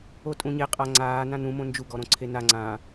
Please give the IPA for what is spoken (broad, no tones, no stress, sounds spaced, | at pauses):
o tʼ ũ ɲ e qʼ a ŋ͡ǀ aː n ã n ũ m õ n d͡ʒ u ɡ ɔ ɾ õ ǀʰ e n a ŋ͡ǀ ãː